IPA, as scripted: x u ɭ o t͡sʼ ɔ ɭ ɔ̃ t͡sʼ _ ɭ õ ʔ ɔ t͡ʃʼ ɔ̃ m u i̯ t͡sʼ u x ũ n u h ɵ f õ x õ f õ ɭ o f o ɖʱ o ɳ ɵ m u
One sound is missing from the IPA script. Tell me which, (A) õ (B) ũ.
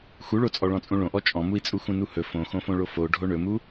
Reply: B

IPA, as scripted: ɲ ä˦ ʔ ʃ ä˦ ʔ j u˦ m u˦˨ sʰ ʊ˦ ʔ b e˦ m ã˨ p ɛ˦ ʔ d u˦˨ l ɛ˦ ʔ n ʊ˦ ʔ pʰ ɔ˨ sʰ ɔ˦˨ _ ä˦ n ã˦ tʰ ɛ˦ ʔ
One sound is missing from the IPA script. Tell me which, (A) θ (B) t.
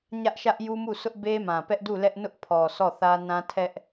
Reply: A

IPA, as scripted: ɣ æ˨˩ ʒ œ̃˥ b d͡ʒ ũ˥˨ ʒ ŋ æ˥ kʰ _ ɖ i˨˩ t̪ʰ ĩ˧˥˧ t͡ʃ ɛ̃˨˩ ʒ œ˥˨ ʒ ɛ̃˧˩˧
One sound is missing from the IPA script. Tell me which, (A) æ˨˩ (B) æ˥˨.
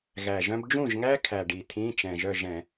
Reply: A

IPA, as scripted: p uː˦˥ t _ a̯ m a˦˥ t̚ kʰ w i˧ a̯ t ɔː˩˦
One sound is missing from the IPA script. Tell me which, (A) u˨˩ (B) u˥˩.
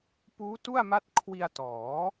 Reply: B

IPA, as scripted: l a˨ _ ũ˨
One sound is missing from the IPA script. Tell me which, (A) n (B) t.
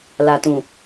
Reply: B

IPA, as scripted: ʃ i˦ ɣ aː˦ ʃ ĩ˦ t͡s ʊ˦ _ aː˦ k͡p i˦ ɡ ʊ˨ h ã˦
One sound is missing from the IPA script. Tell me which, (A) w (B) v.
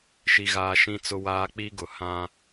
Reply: A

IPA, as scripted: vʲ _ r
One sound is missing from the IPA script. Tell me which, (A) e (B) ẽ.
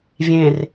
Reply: B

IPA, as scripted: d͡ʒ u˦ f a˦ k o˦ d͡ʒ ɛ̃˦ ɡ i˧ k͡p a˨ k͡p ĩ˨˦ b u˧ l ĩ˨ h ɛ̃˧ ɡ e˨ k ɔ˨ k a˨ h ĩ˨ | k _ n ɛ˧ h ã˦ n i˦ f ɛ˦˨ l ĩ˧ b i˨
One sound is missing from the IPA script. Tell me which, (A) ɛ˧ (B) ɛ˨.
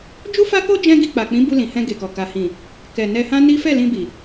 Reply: B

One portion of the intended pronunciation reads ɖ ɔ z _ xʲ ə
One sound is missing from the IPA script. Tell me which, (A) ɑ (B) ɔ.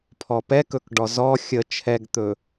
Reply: B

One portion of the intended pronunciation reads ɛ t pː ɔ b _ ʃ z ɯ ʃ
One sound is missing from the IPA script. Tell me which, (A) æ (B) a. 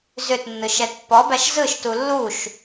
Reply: A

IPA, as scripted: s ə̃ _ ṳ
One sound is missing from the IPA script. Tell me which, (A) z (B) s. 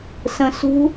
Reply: B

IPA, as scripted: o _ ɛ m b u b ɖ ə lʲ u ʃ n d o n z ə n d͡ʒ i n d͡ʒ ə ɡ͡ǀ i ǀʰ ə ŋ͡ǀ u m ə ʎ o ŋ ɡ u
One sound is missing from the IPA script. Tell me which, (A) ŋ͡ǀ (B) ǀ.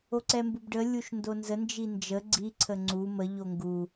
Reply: B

